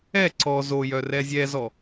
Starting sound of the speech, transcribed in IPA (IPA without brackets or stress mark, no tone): ɛ